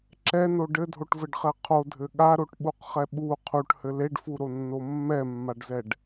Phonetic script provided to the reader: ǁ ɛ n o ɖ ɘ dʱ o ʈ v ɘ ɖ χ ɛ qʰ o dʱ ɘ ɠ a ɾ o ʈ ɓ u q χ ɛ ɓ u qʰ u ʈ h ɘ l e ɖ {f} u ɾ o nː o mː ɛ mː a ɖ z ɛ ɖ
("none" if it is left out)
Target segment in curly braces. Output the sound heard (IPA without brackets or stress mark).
f